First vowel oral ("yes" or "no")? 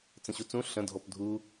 no